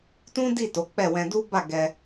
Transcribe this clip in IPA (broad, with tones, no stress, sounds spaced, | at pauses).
t ũ˦ d i˦˨ t o˨˦ k͡p ɛ˦˨ w ɛ̃˧ d u˦ b a˦˨ ɡ ɛ˧